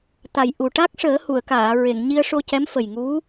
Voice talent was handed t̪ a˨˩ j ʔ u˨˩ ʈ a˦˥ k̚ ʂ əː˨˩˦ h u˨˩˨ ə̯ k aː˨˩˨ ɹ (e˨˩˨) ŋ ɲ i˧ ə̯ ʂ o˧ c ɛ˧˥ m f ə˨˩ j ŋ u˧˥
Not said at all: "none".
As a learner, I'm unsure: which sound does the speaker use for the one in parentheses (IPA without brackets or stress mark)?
e˨˩˨